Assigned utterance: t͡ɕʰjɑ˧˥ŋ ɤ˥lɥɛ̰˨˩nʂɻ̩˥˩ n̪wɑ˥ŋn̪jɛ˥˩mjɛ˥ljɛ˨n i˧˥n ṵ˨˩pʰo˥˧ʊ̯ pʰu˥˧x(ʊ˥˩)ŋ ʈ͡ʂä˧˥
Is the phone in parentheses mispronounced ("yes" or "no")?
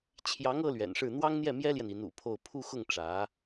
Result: no